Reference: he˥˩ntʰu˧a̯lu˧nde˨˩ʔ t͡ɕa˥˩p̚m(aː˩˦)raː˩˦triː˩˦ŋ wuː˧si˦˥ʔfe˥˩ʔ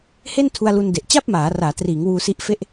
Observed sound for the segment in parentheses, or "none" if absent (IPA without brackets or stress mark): aː˩˦